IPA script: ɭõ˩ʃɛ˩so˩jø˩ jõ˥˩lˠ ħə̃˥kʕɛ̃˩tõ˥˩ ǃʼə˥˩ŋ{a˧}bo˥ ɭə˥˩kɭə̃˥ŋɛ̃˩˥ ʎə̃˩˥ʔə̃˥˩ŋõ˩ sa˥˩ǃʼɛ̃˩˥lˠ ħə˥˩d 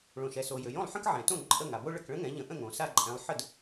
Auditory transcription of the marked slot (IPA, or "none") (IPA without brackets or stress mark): a˩